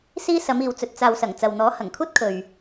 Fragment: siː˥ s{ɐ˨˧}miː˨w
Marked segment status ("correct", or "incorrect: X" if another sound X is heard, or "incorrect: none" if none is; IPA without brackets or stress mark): correct